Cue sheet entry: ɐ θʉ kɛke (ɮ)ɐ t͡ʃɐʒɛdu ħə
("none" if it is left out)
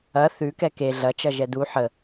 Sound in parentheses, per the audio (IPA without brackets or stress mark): ɮ